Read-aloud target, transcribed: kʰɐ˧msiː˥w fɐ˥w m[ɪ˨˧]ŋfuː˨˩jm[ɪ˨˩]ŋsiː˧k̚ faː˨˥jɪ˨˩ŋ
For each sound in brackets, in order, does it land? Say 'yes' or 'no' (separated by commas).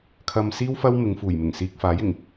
yes, yes